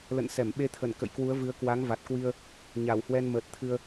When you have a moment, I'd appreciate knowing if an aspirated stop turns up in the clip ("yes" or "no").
yes